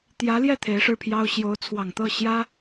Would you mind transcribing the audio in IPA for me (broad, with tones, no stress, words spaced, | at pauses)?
t̪jä˧˥ljɛ˥˩ t̪ʰe˧˥ɪ̯ʂɻ̩˥˩pʰjɑ˥ʊ̯ ɕjo˧˥ʊ̯t͡sʰwɑ˨˩ŋ t̪ɤ˥˩ ɕjä˥